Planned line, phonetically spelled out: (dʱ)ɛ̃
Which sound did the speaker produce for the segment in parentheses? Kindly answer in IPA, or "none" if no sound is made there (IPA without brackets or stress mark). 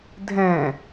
dʱ